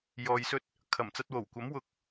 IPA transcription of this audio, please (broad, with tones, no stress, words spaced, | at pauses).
jɔː˧jsɵ˥t̚ | kʰɐ˨˩mt͡sɐ˧t̚wo˨˩wkʷɐ˨˥m wʊ˨˥k̚